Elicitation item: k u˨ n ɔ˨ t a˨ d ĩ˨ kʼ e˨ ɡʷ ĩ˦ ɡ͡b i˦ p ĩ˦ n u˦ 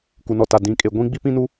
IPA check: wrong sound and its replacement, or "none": none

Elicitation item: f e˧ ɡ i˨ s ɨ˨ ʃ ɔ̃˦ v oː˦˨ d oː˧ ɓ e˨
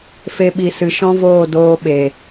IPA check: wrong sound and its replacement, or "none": ɡ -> ɓ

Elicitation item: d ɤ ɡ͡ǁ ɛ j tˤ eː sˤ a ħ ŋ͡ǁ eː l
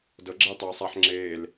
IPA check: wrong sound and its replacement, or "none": none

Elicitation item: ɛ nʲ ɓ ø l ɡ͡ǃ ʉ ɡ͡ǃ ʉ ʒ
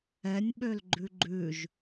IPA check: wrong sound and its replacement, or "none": none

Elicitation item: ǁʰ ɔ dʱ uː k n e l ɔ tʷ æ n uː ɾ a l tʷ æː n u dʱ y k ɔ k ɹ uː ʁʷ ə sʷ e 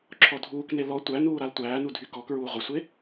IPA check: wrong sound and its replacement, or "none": none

